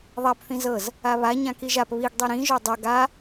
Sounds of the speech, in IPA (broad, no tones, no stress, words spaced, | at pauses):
ðˤap θĩzɤz | aβa ɲãkiʒap βiɡ dˤiɾĩ ʒodˤɤ ɡa